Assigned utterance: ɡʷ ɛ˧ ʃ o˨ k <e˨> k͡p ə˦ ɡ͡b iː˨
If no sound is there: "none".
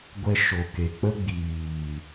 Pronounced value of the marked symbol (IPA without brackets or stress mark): e˨